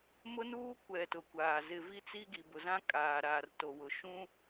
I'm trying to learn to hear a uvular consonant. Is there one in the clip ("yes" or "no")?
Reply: no